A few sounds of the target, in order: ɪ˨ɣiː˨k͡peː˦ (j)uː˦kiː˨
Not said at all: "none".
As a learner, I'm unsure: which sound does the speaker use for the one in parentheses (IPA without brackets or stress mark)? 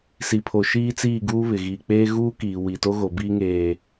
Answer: ɣ